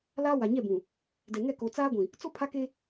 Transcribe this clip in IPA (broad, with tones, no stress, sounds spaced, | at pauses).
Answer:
l aː˦ w a˨ ɲ ɛ˦˨ b ũ˨ | d ɛ˨ ŋ ɛ˦˨ k o˨ t͡s aː˦ ɡʷ ĩ˨ | t͡s o˦ pʰ a˦ k e˦